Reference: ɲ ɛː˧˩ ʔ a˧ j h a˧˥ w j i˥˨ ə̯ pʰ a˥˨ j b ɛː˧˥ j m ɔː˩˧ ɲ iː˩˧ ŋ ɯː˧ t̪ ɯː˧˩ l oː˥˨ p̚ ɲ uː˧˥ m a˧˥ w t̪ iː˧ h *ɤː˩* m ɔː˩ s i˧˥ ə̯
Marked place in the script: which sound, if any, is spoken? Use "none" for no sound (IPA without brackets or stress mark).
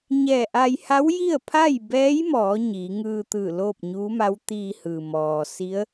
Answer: ɯː˩